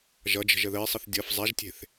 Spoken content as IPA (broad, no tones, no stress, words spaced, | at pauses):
ʒʌd͡ʒə̤ʒ əðəe̯sˤəθ dʲʌf zˤaʒtʲe̤θ